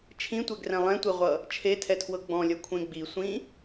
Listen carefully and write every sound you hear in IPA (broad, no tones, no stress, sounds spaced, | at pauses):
t͡ʃʰ ĩ tʷ ɛ ɡ r ɛ̃ lˠ ɛ̃ tʷ e ʁʷ ʌ | t͡ʃʰ e tʰ ɛ tʰ w ɤ ɡ͡b ɔ̃ lʲ ʌ kʷʰ ẽ ɡ͡b i sʷ ĩ